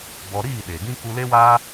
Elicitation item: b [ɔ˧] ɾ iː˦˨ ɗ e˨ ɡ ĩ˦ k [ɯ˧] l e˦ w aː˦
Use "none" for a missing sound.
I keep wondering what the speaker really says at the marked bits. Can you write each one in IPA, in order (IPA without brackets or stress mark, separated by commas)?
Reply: ɔ˧, u˧